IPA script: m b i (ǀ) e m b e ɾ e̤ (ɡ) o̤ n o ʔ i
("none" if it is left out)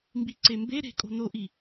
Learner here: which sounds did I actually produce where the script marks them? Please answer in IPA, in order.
ǀ, kʼ

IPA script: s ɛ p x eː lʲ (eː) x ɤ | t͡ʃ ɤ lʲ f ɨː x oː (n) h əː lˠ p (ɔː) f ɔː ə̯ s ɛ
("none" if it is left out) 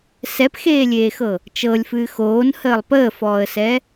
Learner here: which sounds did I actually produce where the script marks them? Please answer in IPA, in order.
eː, n, əː

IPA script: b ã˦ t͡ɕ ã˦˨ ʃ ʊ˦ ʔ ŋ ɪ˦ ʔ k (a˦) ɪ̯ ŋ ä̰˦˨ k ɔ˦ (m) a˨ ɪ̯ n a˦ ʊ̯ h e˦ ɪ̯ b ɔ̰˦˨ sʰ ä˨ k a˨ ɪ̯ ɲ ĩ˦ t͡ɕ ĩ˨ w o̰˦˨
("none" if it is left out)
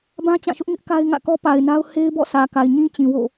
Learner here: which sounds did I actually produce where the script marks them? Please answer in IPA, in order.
a˦, p

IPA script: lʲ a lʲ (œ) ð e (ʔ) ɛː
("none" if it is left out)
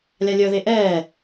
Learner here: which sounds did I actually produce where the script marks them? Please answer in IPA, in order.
œ, ʔ

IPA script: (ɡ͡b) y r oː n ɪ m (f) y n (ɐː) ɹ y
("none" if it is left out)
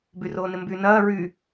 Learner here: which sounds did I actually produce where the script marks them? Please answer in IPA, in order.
b, b, ɐː

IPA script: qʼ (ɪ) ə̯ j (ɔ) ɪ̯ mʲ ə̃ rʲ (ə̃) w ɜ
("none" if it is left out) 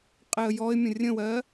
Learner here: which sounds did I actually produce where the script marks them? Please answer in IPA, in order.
ɪ, ɔ, ə̃

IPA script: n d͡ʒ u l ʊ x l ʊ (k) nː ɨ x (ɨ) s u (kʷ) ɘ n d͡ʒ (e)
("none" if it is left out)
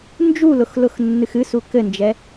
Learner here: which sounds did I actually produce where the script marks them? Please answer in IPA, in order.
x, ɨ, k, ɛ

